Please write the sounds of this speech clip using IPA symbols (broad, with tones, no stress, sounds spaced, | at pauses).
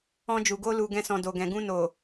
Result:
ɔ̃˧ d͡ʒ u˨ ɡ o˧ l u˨ ɡ ɛ̃˧ s ɔ̃˨ d o˨ ɡ ɛ̃˨ ɡ ũ˧ n o˨